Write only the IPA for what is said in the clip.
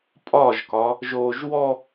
pʼɒʒkɒ | ʒoːʒwɔ

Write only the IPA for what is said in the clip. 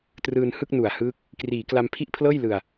trɯː˧n hɯ˥˩k̚nu˨˩a̯hɯː˦˥k̚ | kriː˩˦kla˧mpʰi˥˩ʔpʰlɤː˥˩j lɯ˨˩a̯

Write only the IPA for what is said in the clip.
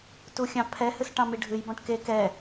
tuxʲɑ̃pʰɛ hɨsʈɑ̃miɖʱɨj bɔ̃ʈke kɛ

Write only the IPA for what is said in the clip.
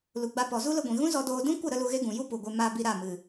lu˨ɡ͡ba˧pɔ˨ zu˦lə˧ɡʷĩ˨ ɣũ˦zɔ˧doː˧ dũ˦kʷə˦˨ ɾə˦lu˧ɣe˦ɡũ˨ ju˦ pu˨ɡʷe˧ ma˧ bi˧ɾa˦˨mɨ˨

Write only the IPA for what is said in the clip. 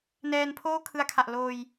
nɛː˧npʰoː˥˩ kʰɯ˧a̯kʰa˨˩ʔ loː˧j

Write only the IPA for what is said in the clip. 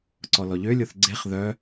ǀɔlɔʎølʲoθ ɡ͡ǀeχ ðœ

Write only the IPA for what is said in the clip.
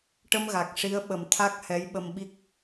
ʈə˧mɣa˨˩k̚ ʂi˧˥ə̯ɓə˨˩m t̪ʰa˦˥k̚ hɛ˧˥jɓə˧mɓi˦˥k̚

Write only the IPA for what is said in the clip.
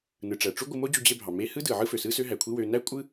nɯ˩ʈ͡ʂæ˩ʈ͡ʂu˥ ɡʷɯ˧mo˥d͡ʑu˧ d͡ʑe˧bʱɑ˩ me˧ hɯ˥dɯ˩ ʕɯ˥fø˩ sɯ˥sø˥ɦæ˩kʷʰi˥ wø˧ næ˥ kʷʼɯ˥

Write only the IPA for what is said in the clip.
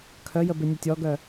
kʰœjəbɪ nʲɐtʲɔɡœ

